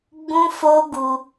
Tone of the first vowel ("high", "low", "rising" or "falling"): high